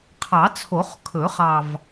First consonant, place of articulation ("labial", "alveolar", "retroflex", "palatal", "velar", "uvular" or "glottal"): uvular